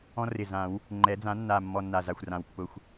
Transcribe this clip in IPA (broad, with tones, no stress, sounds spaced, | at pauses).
ɔ̃˦ r ɪ˨˩ z ã˨˩˦ w | ŋ͡ǃ ɛ˩˥ d͡z ã˩˥ nː a˨˩ mː ɔ˦˨ nː a˨˩ z a˨˩ xʷ r ã˨˩ w pː ʊ˨˩ xʷ